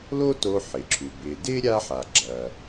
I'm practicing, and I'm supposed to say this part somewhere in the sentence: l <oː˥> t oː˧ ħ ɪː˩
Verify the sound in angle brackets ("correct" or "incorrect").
correct